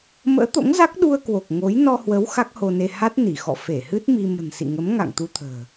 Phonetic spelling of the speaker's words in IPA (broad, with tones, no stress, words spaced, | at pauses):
mə̰ː˧˥t̪o̰˧˥ŋ za˦˥k̚ɗu˧ə̯kwo˨˩k̚ ŋo˨˦j nɔ˧hwə˨˦w xa˦˥k̚ho˧ne˧ ha˦˥t̚ni˧˩ xɔ̰˧˨ fe˧˩hɨ˦˥t̚ mi˧ mə̤˨˩nsḭ˧˨ŋə˨˦mŋa̰˧˨ŋ t̪u˧t̪ʰə̤ː˨˩